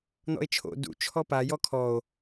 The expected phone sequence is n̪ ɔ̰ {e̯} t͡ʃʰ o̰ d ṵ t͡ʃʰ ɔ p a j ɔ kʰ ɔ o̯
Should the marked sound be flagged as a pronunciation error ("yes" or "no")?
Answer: no